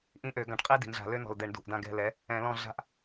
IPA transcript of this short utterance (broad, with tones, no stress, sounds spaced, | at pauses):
ʔ ĩ˦˨ ʔ ø˧˩˧ ɡ ã˩˧ ʈ qʼ i˦ d i̤˩˧ n ɮ a̤˧˩˧ l ø˦ n ɔ̤˨˩ l d ɛ˧˩˧ ɳ d ṳ˨˩ ʔ d ã˦˨ ɡ ɛ̤˦˨ l ɛ˨˥ | ɛ̃˧˩˧ l ɔ̃˦˨ ɮ a̤˦ ʔ